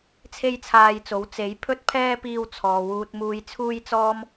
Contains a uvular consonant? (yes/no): no